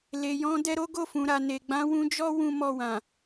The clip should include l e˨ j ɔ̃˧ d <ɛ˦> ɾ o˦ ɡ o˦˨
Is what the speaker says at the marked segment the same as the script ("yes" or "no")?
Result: no